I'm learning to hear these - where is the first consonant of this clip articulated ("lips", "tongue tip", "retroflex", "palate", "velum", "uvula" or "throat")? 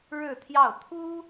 retroflex